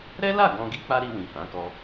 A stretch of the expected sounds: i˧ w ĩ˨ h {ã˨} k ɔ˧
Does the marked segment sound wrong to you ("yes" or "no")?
yes